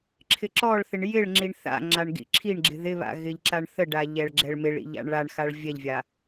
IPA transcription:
ǁʰɪǁɔɭθɪɳ jɪɭŋ͡ǁiɳ θa̰ŋ͡ǁaɳ ɡḭǁʰiɳɡ͡ǁɪ ðɪβa̰ ɣɪʎǁaɳθəɖa ʎɛɭɡ͡ǁɛɭmɪɭḭʎ a̰ɳɭaɳxaɭ vʲɛʎvʲa

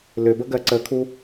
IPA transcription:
lʏbə ɡɜǀəkʰu

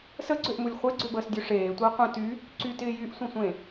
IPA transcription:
səɡ͡ǀøʔmulʲ χʷeɡ͡ǀøbəːsdʲø ʂeːtʷɪː qʷə̃ ty | ǀytɪː jyʔsʷə̃sʷẽ

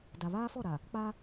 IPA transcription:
da˨βaː˦fɔ˦˨ɾa˨ | k͡pa˦

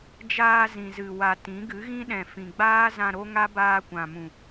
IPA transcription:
d͡ʒaː˧ zĩ˨zɨ˨wa˨ tĩ˨˦ɡɨ˨˦ɣĩ˦ɗɛ̃˨ fĩ˨ɡ͡baː˦zã˧ ɾo˦ŋa˦ baː˧kʷã˨mũ˨

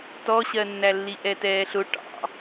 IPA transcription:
tɔɕɜnːælːi ʔɛtɛːɬʊ ʈɑ̰

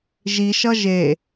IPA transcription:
ʒiʃʌ ʒe

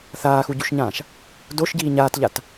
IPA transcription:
θaːxuɟuʃɲãːʃ | doʃɟiː ɲaːtʎat

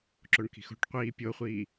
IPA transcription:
ǁoɳki̤xo̤ʈqʷiː pʲoχʷiː

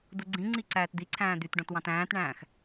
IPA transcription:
duɡ͡ǀĩŋ͡ǀi ǀæːtd̪iǀʰæ̃ː d̪ytɖõt wɑ̃tæ̃ːtɳæ̃ːx

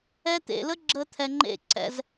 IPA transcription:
ɛ˧t̪ḛ˨lə˦ ɡ͡ǁəː˦t̪ʰɛ˧ŋ͡ǃḛ˦˨ ǀɛ̰˧z

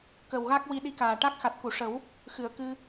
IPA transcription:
kə˨˩wɣa˦˥k̚ wi˧ɗi˧˥kaː˨˩ʈa˦˥k̚ xa˨˩t̚ku˨˩˨ʂə˨˩˦w | xɨ˨˩˨ə̯kɨ˧

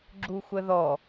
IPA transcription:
ɡ͡ǁuxʷəðɔ

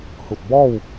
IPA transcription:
hu˧˩t̚ bɔː˥˨w

